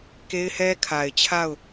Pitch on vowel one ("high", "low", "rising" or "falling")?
high